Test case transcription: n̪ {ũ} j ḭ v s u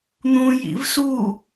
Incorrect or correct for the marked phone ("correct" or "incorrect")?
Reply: correct